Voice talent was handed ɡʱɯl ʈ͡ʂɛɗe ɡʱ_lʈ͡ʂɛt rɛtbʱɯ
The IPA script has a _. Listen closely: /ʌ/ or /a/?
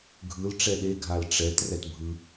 a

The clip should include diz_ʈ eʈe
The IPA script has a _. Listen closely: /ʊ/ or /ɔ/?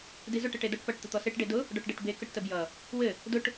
ʊ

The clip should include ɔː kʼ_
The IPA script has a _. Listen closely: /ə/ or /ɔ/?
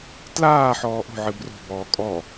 ɔ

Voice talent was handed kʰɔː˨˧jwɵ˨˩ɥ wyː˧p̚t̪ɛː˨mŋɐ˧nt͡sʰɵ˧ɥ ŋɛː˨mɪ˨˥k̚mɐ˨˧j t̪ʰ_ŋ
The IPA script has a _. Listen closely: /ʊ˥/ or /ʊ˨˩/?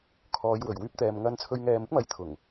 ʊ˨˩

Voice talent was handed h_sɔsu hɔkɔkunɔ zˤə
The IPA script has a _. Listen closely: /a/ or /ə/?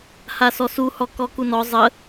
a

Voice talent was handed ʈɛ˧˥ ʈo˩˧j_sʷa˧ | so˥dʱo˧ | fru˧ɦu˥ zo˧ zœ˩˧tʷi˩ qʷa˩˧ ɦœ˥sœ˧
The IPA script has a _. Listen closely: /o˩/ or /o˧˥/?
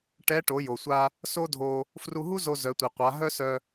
o˩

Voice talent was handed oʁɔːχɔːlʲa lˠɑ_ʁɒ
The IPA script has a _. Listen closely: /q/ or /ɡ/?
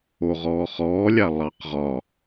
q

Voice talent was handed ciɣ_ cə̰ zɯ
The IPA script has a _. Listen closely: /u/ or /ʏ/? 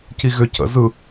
ʏ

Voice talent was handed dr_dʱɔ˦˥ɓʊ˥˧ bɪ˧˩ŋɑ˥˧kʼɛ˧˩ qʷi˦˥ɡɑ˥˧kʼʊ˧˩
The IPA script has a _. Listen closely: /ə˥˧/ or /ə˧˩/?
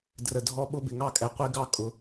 ə˧˩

